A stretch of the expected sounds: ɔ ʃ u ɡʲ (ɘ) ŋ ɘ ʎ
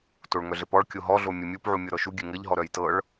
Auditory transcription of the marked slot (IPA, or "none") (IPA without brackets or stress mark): ɘ